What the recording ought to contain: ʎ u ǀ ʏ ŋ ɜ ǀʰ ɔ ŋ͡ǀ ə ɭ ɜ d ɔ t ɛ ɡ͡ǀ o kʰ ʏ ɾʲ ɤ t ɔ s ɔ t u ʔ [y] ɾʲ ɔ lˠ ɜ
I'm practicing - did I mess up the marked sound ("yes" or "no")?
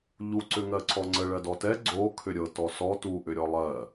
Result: yes